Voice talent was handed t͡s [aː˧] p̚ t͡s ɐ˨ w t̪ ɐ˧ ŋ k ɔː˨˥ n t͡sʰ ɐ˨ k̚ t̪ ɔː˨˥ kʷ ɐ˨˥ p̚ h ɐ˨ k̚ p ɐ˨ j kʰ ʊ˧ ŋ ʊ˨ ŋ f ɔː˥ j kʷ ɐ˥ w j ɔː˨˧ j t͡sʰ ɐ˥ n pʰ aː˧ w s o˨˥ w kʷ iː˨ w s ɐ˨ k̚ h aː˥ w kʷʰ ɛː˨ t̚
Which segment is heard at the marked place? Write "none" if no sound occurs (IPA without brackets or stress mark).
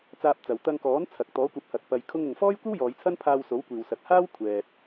aː˧